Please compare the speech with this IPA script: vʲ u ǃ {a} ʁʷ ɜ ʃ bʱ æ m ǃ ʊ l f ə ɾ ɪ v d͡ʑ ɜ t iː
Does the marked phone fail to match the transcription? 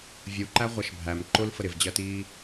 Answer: yes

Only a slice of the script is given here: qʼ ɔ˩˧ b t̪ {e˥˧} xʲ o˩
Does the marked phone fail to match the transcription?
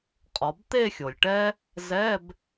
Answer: no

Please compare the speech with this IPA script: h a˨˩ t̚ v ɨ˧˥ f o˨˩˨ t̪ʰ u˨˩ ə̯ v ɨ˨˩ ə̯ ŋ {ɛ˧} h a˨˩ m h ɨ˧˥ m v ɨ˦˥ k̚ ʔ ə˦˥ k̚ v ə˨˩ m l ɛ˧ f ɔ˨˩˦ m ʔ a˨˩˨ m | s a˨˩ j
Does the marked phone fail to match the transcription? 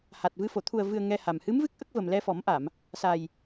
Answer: no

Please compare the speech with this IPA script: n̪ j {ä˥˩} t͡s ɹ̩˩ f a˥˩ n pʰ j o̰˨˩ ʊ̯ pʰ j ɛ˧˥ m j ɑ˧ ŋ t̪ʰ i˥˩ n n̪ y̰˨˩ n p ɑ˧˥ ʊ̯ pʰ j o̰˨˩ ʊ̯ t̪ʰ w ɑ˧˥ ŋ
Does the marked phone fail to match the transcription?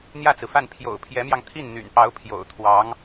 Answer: no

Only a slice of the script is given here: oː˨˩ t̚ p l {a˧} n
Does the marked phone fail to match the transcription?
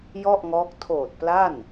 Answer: yes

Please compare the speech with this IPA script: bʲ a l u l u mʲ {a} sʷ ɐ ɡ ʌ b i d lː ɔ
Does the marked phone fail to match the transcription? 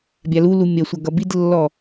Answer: yes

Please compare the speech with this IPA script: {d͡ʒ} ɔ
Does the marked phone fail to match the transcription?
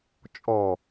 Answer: yes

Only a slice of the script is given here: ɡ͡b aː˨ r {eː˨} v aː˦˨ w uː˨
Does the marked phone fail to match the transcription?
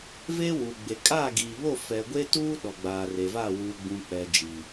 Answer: yes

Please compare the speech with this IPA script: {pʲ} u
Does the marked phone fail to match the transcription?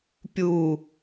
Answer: no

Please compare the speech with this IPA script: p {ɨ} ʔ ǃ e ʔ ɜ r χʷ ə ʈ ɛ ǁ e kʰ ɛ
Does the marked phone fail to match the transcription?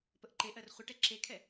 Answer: yes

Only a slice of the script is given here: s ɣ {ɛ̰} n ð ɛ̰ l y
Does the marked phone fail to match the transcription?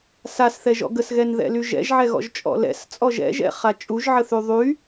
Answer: yes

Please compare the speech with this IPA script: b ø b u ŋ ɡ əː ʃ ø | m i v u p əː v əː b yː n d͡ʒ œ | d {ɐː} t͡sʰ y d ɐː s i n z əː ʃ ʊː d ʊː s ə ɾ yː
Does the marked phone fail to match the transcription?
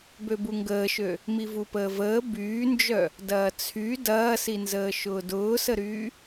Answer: no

